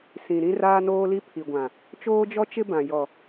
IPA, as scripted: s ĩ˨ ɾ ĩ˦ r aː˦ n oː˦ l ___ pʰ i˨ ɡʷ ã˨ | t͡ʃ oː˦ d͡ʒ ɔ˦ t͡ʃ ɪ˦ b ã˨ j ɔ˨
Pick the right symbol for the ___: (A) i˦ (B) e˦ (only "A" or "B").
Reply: A